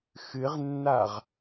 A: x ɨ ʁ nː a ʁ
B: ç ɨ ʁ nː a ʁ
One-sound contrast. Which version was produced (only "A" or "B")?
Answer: A